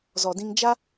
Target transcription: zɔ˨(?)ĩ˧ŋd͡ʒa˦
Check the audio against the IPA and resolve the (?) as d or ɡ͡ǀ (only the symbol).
d